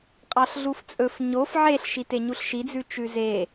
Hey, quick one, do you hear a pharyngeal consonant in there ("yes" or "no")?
yes